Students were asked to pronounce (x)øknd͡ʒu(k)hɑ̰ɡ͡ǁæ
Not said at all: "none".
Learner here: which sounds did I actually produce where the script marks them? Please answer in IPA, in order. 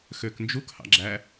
x, k

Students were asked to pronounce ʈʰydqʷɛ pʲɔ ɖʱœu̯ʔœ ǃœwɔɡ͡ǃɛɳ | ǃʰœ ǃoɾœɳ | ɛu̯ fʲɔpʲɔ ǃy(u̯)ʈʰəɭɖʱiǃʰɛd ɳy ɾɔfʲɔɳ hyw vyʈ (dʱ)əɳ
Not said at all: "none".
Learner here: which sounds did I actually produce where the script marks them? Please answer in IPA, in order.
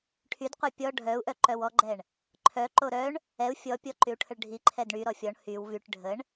u̯, ɖʱ

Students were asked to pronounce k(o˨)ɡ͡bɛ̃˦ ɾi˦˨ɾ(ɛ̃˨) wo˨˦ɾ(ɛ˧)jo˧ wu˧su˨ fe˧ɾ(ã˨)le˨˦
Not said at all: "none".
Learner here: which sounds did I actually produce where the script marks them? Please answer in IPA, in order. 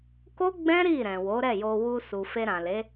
o˦, ɛ̃˨, ɛ˦˨, ã˨

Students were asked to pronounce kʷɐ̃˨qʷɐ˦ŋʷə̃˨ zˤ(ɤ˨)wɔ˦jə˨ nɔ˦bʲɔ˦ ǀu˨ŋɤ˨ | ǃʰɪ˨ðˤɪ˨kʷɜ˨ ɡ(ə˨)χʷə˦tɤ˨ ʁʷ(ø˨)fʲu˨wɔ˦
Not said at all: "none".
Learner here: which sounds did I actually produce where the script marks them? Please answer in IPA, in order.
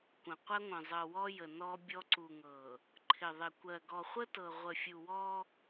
ɤ˨, ɔ˨, ə˨

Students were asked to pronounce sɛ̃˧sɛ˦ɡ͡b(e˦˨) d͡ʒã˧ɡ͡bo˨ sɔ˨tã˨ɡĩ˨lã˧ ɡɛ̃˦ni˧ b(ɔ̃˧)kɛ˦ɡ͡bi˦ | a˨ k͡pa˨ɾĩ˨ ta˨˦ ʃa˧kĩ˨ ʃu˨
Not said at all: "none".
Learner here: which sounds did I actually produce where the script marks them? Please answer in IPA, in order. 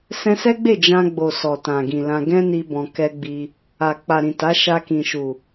e˦˨, ɔ̃˧

